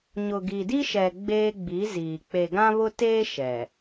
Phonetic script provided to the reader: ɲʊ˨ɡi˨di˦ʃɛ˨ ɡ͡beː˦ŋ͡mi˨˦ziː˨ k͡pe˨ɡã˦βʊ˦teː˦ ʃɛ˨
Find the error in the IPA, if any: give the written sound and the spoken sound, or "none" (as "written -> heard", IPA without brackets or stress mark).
ŋ͡m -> ɡ͡b